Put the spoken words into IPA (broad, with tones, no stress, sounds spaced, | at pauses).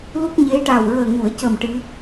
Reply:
l u˦˥ k̚ ɲ e˧˥ ʈ a˨˩ w ɹ əː˨˩ ŋ u˨˩˨ ə̯ c ə˨˩ m ʈ ɨ˧˥